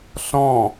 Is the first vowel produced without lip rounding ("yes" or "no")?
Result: no